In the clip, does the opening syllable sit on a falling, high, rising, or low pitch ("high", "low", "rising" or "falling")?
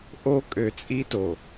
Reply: high